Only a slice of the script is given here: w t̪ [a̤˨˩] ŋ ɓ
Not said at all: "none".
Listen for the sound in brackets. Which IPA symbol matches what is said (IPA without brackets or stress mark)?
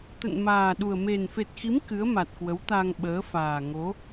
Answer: a˧